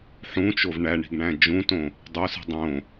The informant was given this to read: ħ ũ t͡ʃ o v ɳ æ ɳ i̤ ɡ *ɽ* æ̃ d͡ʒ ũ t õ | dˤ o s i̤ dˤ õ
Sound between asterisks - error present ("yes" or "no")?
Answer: yes